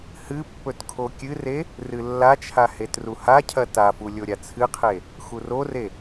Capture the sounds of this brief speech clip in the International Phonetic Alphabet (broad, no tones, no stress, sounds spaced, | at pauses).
h ɨ pː ɵ t kʰ o kʲ ɨ r e | r ɨ lː a t͡ʃʰ a h e t r u h a cʰ ɐ t a f u lʲ o ɾʲ a t͡sʰ ɨ qʰ e | x u r o r e